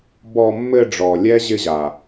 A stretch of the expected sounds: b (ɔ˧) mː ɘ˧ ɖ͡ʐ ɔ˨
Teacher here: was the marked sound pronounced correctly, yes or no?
yes